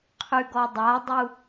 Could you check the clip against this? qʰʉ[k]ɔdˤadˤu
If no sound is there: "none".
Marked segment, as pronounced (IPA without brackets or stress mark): ɡ